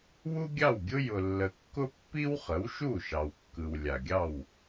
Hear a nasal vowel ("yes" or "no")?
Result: no